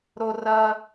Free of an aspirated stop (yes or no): yes